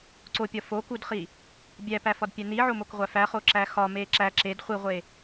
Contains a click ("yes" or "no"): yes